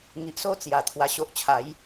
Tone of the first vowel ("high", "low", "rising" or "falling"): low